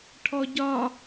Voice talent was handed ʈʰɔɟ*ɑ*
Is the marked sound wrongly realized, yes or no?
yes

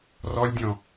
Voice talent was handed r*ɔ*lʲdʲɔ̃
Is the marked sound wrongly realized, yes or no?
no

